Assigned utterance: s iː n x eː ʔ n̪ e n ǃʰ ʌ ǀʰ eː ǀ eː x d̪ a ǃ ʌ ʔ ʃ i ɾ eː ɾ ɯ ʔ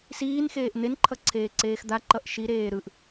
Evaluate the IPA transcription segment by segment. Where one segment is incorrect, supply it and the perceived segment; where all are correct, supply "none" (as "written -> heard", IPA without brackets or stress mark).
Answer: none